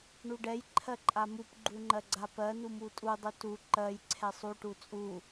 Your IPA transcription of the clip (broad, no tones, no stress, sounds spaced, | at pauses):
ɳ u ɖ ɛ j ǃʰ ɜ ǃʼ a m u p ɡ͡ǃ u ŋ͡ǃ ɜ ɡ͡ǀ a p ɜ n u m u tʼ u dˤ u t u ǃ ɜ j ǀʰ ɛ sˤ u ʈ u t͡sʼ u